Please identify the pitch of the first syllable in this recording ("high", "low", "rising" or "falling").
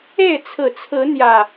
falling